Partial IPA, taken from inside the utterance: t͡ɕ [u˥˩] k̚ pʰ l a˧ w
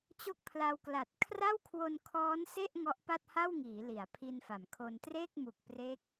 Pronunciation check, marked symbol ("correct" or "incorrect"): incorrect